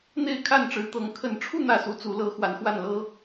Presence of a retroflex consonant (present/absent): present